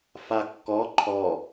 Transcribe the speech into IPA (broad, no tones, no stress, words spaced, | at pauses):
fakːɔ ǃʰɔ